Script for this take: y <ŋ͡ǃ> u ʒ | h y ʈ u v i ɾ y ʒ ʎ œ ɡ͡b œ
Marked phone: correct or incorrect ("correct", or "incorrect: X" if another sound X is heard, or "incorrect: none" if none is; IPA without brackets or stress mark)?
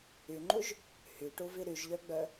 correct